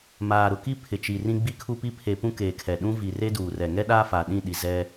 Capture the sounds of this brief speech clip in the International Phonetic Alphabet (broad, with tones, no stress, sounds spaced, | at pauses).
m aː˨ ɾ ʊ˨ k i˦ pʰ ɪ˨ t͡ʃ i˨ r ĩ˦ ɡ͡b i˦ kʰ u˦ p i˦ pʰ e˨ p ũ˦ k eː˨ kʰ ɛ˨ ɗ ũ˦ v i˨ r e˦ d uː˨ r ɛ˨ ŋ ɛ˦ ɗ aː˦ f a˨ ɗ ĩ˦˨ ɗ i˨ z ɛ˦